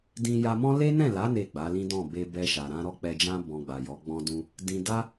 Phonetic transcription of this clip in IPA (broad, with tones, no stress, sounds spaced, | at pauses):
d ĩ˧ j a˧ m ɔ̃˦ l e˦ n ɛ̃˦˨ l a˨˦ n e˦˨ ɡ͡b a˨˦ l ĩ˦ d ɔ̃˦˨ b e˨ b ɛ˧ ʃ a˨ ɾ ã˧ ɾ ɔ˦ k͡p ɛ˧ d͡ʒ ã˦ b ɔ̃˧ ɡ͡b a˨ j ɔ˨˦ ɡ͡b ɔ̃˧ d ũ˧ | d ĩ˧ d a˦